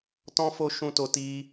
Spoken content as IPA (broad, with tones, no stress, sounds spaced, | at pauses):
t ɔ̃˦ f o˦ ʃ ũ˧ t o˧ t i˦